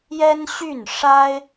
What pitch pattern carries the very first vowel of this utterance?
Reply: high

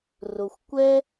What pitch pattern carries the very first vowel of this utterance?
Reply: low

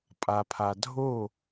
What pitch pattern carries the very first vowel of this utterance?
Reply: low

